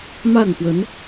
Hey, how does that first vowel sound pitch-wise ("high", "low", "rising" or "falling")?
falling